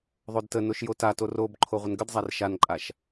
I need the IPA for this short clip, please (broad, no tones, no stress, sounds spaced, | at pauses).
ðˤ o d t ə n o ʃ j o t a t o r o b ǃʰ o ʁʷ ə n ɡ ə d zˤ a r ʃ a n ǃʼ a ʃ